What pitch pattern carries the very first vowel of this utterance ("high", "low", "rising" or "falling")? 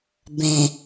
low